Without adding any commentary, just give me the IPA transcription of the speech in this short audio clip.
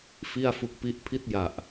f i˥˩ a̯ f u˦˥ k̚ p i˦˥ ʔ pʰ i˥˩ t̚ j a˨˩ ʔ

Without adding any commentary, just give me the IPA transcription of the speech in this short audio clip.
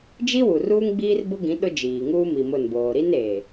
d͡ʒ i˦ w u˨ r uː˦ ŋ ɡ͡b iː˦ r b ʊ˦ ɡ ĩ˨˦ ɗ ʊ˦ d͡ʒ iː˨ ŋ uː˦ m i˨ m ʊ˦˨ n b oː˨ ɾ i˦ n eː˨

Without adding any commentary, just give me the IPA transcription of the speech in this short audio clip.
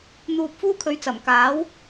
n̪ uː˧ p̚ f uː˥ kʰ ɵ˨˧ ɥ t͡s ɐ˨˩ m k aː˨˥ w

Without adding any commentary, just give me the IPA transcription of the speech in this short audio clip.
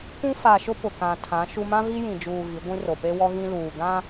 kʷ ũ˦ f a˨ ʃ ʊ˦ p ʊ˨ k ã˨ tʰ ã˨˦ ʃ u˦ m ã˦ v i˦ j ĩ˨ d͡ʒ uː˨ ɣ i˨˦ ɡʷ ĩ˦ r o˨ p e˦ w ɔ˦ ɣ ĩ˦ l uː˨ ɡ ã˦

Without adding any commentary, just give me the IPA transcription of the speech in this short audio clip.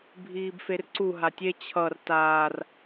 bʱ iː b f e r ǀ u ɦ a tʲ e t͡ɕʰ ʌ r t aː r

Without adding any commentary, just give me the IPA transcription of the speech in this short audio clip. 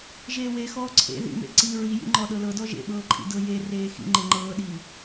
ʒ eː w e x ɔː ǀʰ ḛ ð ḭ m ḛ ǀ i ɹ i j ḭ ŋ͡ǃ ɔ ɗ ɤ l ɤ d ɔ ʒ ḛ ɓ ɤː ǃʼ ḭ d ɤ j e r eː x ḭ ŋ͡ǃ e ŋ͡ǃ ɤː ɗ iː

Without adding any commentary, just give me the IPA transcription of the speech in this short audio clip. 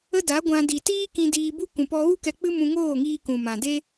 ə˦ d a˨˦ ɡʷ ã˧ d i˨ t iː˦ k ĩ˧ d iː˧ b u˦ k ũ˨ p ɔ˧ ɣ u˦ k ɛ˧ k͡p ɨ˦ m ũ˧ ŋ oː˦˨ ŋ iː˧ k ũ˨ m ã˨ d e˦

